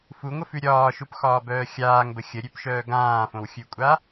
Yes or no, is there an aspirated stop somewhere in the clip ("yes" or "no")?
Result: no